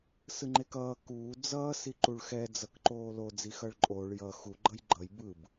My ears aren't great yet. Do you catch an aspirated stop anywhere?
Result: no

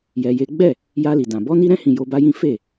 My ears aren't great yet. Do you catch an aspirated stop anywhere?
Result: no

